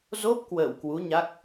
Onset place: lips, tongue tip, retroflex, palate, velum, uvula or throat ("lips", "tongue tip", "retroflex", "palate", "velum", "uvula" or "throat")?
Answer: tongue tip